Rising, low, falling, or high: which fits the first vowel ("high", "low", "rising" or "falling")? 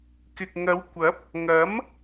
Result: low